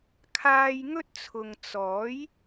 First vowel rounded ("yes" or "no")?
no